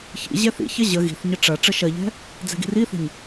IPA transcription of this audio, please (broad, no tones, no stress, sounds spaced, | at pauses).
ç ḭ ʑ ɛ θ ḭ ç ɐ ʑ ə ɣ i̤ θ ɲ ə ʈ͡ʂ ɐ ʈ͡ʂ ə ʃ ɐ ʎ ɛ̤ | d͡z ɛ̤ ɡ i̤ r i θ ə̤ ɲ